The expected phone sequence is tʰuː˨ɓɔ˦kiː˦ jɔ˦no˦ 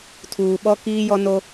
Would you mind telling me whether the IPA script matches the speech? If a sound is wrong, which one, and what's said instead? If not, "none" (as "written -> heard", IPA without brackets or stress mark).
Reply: none